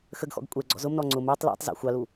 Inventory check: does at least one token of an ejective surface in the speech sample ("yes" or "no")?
yes